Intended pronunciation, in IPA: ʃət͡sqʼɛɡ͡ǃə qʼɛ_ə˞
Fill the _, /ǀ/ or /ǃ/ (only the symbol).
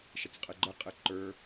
ǃ